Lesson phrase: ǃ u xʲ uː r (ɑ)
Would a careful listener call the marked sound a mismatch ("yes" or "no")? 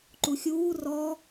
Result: yes